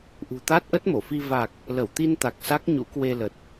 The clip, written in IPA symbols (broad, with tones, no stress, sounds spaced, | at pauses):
ʔ ṳ˨˩ t̪ a˦˥ t̚ ʔ ə˦˥ t̚ m o˧˩ f i˧ v a˨˩ k̚ | l ə˧˩ w t̪ i˧ n t̪ a˨˩ k̚ s a˦˥ k̚ ɲ ṵ˧˥ k w e˧ l ə˨˩ t̚